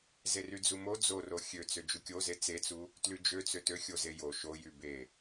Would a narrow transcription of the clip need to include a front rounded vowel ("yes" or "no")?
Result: yes